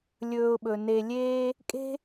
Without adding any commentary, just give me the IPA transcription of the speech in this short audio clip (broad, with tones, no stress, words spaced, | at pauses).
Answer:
lʲɵː˨ʊ̯ɓɵ˩ ne˨ lʲeː˥ | kʼe̤˥